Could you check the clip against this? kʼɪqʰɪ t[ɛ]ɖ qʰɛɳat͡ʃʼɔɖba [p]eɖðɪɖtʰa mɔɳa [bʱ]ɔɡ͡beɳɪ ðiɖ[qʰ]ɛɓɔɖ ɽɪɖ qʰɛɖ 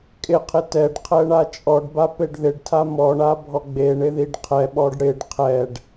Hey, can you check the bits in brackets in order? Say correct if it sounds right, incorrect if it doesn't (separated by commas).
correct, correct, correct, correct